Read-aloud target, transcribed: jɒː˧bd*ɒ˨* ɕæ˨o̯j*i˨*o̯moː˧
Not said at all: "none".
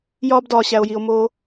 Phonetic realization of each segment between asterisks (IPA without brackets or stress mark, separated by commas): ɒː˨, i˨